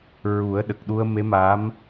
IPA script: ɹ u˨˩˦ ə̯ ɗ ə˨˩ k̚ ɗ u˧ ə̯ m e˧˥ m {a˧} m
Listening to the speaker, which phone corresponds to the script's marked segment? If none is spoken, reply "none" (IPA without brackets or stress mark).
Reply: a˧˥